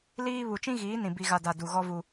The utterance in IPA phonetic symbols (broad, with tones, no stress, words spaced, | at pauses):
liː˦ βu˨t͡ʃĩ˦ɣiː˨˦nĩ˨ bi˨ɣa˨da˨ du˨ɣɔ˦vu˦